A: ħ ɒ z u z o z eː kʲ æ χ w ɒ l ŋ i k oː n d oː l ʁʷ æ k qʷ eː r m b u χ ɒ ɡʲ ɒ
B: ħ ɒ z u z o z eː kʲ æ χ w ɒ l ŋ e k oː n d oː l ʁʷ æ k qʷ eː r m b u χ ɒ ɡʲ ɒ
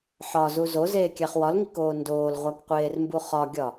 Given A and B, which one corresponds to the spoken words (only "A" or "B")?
A